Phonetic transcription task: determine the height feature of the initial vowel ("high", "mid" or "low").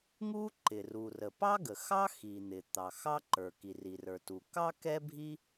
high